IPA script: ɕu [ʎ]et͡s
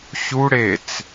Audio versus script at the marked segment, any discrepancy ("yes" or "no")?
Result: yes